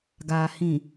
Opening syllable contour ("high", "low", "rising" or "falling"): low